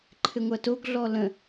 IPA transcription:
ǃʰɘŋʷɐtoɡ ɮɔlə̃

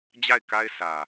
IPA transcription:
d͡ʑa˦˨ɪ̯ka˦ɪ̯ sä˨

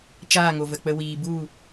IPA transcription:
t͡ʃaː˦˨ŋo˨və˨k͡pə˧ wiː˨bu˦˨

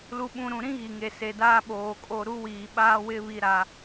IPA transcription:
lu˨ɓũ˨ ɾũ˨ɾĩ˦ ɣi˨ŋe˨se˨daː˦ ɓoː˨kʼo˦˨ ɾu˦wiː˨ɓaː˦wɪ˦ βi˦ɾa˦

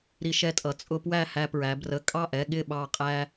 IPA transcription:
ɾi˧ʃɛ˧tʼʌ˩˧ t͡sʼʊ˧ pwæ˥˧ hæ˧pɹæ˩˧ brə˩˧˩ kʼɑ˥˩ʔɛ˩˧˩ ɠɪ˥˩ɓɑ˧˩qʼæ˧

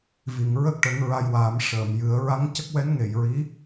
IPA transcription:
vi˨˩˨ŋɹə˦˥k̚ʈə˨˩˦ŋ ɹa˧jwaː˨˩˦m ʂəː˨˩˨mjɨ˨˩˦ə̯ ɹa˧˥ŋcə˦˥k̚wɛ˧˥n ŋe˨˩˨jɹi˧˥

